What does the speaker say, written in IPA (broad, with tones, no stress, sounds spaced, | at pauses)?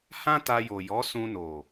h ã˦ t a˧ j o˨ j ɔ˨˦ s ũ˧ n o˨